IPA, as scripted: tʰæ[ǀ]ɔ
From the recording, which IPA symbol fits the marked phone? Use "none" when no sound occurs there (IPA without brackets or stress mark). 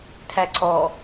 ǀ